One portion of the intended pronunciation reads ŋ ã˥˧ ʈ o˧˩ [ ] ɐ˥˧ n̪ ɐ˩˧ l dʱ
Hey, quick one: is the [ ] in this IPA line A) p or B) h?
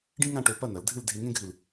A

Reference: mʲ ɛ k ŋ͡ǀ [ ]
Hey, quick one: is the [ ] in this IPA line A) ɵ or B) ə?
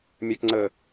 B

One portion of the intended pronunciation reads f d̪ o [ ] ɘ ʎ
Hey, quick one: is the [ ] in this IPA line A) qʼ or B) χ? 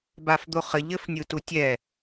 B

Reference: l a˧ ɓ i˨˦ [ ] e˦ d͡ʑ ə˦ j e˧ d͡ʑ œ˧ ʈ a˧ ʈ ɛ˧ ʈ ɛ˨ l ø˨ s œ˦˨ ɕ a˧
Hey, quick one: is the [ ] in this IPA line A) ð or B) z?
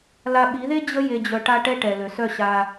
A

